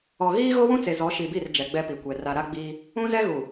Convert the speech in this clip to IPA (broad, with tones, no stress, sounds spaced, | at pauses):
ɔ˨ ɣ iː˦ ɣ o˦ w ũ˦ t͡s e˨ z ɔ˨˦ ʃ i˨ b i˦˨ r d͡ʒ ɛ˨ ɡ͡b ɛ˦ p i˨ kʷ ɛ˨ r a˨ ɾ a˦ ɡ͡b iː˦ | ũ˦ z ɛ˦ ɣ u˨